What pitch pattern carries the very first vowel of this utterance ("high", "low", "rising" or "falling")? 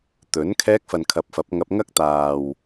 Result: rising